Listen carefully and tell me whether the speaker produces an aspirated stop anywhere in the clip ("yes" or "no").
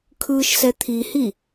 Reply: yes